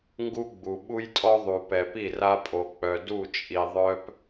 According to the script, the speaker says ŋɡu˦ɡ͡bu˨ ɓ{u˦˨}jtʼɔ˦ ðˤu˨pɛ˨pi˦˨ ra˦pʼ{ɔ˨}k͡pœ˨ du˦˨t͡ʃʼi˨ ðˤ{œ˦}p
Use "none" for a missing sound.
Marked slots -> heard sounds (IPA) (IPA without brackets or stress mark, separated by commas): u˦, o˨, œ˦